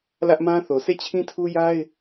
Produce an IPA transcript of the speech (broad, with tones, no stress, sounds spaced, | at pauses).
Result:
l ä˦ ʔ m ã˦ θ o˨ s e˦˨ t͡ɕʰ ĩ˦ tʰ u˦ j a˦ ɪ̯